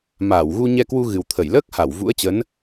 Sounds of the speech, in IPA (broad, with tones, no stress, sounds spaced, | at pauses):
m aː˧˩ w ɣ u˧ ɲ ɛ˧ k w u˧ ɣ ɨ˨˩ w t̪ʰ ə˧˩ j l əː˦˥ k̚ h a˧˩ w v ṵ˧˥ ə̯ t͡ɕ ə˨˦ n